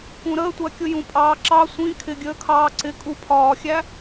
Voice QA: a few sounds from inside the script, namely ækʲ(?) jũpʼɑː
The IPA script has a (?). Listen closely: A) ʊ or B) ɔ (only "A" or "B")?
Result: A